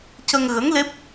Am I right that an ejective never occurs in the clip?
yes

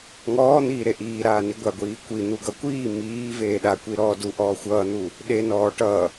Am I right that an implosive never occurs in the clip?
no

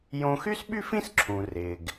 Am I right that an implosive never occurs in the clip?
no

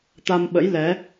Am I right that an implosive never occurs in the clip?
no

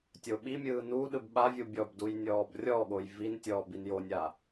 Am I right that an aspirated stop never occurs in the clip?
yes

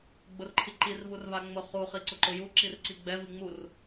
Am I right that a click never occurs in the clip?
no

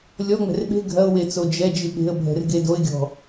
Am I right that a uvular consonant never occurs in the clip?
yes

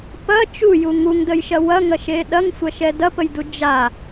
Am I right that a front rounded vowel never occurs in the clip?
yes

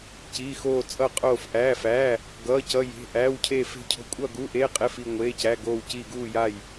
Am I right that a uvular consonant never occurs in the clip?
no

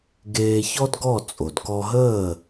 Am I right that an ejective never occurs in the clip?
no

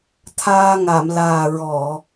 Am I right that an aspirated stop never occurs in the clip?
no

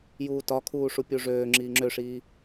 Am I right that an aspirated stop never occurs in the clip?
no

